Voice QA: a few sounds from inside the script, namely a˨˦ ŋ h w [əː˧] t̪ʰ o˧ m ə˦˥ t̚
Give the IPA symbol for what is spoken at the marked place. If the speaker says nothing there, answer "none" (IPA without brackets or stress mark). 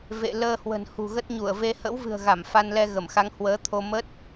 əː˨˦